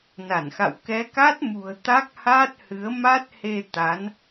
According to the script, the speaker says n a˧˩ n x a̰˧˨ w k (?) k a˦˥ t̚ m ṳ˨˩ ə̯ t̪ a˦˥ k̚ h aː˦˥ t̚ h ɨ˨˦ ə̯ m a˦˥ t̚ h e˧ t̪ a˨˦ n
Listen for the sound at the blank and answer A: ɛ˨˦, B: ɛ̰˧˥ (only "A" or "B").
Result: A